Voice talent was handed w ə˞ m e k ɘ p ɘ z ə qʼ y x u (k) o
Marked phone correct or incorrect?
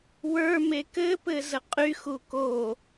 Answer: correct